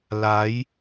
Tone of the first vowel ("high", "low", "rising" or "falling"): rising